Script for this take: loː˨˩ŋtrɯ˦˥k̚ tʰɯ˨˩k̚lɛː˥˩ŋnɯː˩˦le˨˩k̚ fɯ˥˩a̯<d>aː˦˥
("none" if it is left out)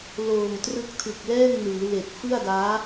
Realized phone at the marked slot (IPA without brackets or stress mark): d